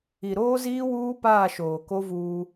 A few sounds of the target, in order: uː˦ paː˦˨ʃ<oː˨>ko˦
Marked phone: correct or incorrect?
correct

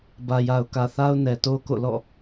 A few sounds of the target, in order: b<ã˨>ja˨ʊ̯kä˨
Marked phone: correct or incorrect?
incorrect: ä˨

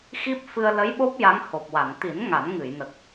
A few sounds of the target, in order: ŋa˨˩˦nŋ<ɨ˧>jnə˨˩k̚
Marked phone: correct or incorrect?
incorrect: ɨ˨˩˨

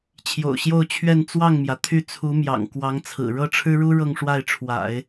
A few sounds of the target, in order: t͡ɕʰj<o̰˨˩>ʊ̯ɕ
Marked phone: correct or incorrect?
correct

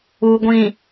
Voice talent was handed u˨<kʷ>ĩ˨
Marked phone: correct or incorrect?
incorrect: ɡʷ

